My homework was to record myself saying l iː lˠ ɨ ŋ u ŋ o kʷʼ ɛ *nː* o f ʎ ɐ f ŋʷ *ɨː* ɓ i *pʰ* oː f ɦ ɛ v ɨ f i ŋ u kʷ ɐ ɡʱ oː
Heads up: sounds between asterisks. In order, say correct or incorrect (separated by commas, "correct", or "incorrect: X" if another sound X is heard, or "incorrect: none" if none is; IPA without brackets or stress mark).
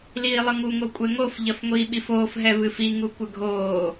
incorrect: ŋ, incorrect: iː, incorrect: f